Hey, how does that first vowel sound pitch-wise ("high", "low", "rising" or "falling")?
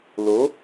rising